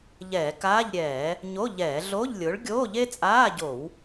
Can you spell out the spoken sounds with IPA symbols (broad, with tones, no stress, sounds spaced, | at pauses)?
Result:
ʎ ɛː˧˩˧ k aː˧˥˧ ʎ ɾʲ ɛː˧˩˧ | ɲ o˧˥˧ ʎ ɛː˧˩˧ ɮ o˧˥˧ ʎ lʲ ʊː˨˥ ɭ ɡʲ oː˧˥˧ ʎ e˥ t͡sʼ aː˧˥˧ ɟ o˧˩˧ w